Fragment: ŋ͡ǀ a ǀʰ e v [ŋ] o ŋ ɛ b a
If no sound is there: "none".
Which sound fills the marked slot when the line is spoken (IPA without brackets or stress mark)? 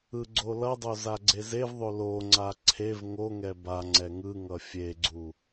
ŋ